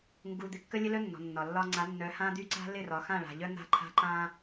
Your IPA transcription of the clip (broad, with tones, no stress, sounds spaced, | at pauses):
ŋ ɡ u˨ d̪ ɪ˨ kː ə˦ lʲ ə˦ l œ˦ nː ɔ̤˨ nː ɒ˨ lː ɒ˦ ŋ͡ǀ a˨˦ nː œ˨˦ h ã˦ d̪ y˦ ǀ a̤˦ l ɪ˦˨ r ɒ˨ x ã˦˨ ɭ a̤˨ ʎ œ˦ n̪ a̤˦ ǃʰ a̤˦ ǃ ã˦